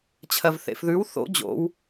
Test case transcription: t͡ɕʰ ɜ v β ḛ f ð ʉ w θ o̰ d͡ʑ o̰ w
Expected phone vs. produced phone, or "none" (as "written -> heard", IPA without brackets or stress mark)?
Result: β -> θ